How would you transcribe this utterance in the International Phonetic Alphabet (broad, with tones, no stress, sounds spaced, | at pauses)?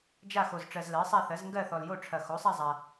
d͡ʒ a˥˧ x o˨ z ʈ͡ʂ ɜ˨ z l ɜ˩˥ sˤ a˥˧ θ ɜ˩˥ z ŋ ɡ ɜ˥˧ θ ɔ˨ l j o˥˧ ʈ͡ʂʰ ɐ˨ x o˩˥ sˤ a˥˧ zˤ a˨